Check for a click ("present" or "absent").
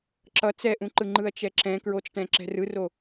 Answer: present